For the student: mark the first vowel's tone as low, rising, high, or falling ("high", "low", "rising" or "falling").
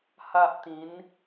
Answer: high